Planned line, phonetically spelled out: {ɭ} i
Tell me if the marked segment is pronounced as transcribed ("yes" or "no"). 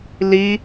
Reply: no